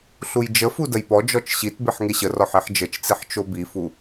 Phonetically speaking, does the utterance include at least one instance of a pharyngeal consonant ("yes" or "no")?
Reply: yes